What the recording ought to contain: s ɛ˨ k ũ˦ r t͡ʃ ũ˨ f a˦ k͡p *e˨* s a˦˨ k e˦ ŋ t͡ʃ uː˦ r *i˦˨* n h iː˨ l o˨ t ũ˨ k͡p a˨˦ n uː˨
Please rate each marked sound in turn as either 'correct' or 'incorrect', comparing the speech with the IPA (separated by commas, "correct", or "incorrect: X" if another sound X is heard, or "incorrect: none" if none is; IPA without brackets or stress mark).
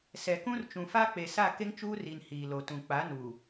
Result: correct, incorrect: i˨